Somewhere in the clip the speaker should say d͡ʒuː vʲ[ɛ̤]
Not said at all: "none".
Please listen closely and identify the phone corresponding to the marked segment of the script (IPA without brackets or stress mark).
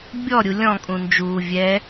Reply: ɛ